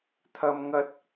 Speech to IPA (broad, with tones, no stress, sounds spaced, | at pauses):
t̪ʰ ɐ˧ m ŋ ɐ˧ t̚